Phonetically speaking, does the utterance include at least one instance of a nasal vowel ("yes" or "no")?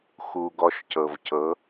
no